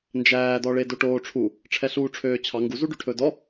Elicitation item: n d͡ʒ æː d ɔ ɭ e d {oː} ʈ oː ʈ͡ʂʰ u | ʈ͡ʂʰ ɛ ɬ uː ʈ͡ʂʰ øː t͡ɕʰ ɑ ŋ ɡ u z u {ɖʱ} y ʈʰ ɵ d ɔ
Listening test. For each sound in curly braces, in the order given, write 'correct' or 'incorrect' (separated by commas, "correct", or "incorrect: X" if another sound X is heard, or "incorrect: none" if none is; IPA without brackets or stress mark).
incorrect: o, incorrect: ɖ